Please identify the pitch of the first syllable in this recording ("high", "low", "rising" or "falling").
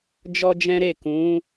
high